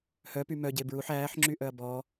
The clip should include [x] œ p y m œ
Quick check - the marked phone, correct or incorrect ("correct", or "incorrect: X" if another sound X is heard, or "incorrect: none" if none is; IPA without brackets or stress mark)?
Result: incorrect: h